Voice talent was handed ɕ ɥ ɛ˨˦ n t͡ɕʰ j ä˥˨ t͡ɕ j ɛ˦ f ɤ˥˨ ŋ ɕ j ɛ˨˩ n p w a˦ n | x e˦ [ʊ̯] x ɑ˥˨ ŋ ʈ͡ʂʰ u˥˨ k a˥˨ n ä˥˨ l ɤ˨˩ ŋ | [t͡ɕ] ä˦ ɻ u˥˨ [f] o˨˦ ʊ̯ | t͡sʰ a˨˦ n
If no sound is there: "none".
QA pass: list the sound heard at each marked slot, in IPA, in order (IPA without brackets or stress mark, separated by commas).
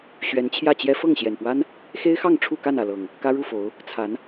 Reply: ɪ̯, k, f